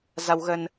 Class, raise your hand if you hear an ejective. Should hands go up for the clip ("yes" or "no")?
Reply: no